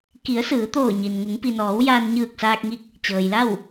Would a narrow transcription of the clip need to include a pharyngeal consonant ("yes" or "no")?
no